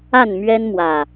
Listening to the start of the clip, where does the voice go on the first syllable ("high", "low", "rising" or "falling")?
falling